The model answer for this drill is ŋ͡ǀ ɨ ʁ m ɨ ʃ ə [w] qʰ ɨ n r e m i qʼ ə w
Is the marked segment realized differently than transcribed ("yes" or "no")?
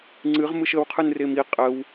no